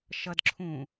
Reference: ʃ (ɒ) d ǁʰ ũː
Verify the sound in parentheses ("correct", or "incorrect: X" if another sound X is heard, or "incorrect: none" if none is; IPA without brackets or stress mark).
incorrect: ʌ